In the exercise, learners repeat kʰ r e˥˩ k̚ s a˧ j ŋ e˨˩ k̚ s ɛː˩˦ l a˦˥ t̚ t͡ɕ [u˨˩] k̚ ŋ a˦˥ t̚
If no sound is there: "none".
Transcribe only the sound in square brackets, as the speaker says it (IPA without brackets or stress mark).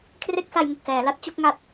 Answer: u˥˩